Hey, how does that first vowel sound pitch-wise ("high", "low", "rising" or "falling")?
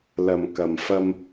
low